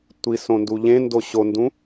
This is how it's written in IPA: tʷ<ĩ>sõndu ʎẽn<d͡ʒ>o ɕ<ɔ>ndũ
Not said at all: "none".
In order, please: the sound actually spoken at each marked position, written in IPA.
i, d, o

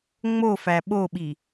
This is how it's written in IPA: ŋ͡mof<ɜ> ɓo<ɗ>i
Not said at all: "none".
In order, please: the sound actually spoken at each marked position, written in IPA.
æ, ɓ

